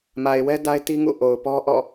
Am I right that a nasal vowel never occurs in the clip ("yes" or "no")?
yes